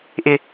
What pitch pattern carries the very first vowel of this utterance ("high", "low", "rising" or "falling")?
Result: high